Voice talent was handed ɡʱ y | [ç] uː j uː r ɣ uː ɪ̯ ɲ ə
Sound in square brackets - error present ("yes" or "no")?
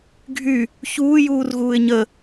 no